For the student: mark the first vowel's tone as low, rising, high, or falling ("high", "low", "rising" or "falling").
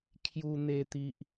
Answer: high